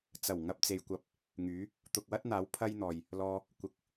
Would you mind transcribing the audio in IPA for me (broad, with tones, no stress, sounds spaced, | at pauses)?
t͡s ɐ˨˩ w ŋ ɐ˧ p̚ t͡s e˨ j kʷ ɐ˧ p̚ | ŋ yː˨˥ | t̪ ʊ˨ k̚ w ɐ˥ t̚ n̪ aː˨˥ w pʰ ɐ˥ j n̪ ɔː˨ j | l ɔː˧ | kʷ ɪ˨ k̚